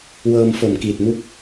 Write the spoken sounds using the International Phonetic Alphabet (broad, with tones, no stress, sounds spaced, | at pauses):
w ɤː˧ m f o˨˩ m k i˨˩ t̚ m u˦˥ k̚